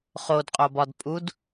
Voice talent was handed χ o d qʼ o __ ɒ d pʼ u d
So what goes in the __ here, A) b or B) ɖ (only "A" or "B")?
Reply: A